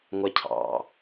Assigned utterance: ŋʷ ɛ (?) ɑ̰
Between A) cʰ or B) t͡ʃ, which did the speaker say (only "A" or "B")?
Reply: A